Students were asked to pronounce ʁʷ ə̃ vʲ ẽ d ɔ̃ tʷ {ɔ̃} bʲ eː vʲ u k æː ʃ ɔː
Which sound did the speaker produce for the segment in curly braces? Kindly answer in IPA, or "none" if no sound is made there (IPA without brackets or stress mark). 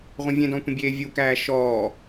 ə̃